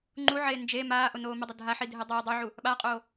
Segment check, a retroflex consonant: absent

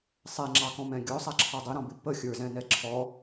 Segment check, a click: present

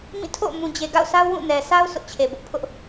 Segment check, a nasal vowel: present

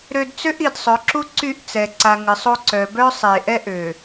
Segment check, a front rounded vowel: present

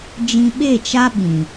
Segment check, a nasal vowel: present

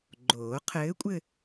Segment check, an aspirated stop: present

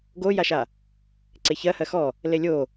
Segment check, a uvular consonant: absent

